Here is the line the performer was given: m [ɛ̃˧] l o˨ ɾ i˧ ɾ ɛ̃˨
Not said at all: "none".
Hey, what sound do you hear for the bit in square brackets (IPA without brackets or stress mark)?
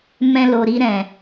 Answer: ɛ̃˧